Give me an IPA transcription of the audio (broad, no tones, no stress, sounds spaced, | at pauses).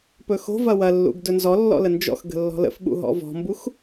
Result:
p ɵ x o̤ v ɐ w ɐ lː ṵ ɡ d ɵ n z ɔ lː ɔ̰ l ə n d͡ʒ ɔ̰ x ɡ ə̤ lː ɔ̤ l ə̰ f ɓ ṵ ɦ ɔ̰ v ɔ̤ m b u x